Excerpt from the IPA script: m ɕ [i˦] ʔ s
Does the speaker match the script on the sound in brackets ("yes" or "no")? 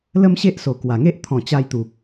no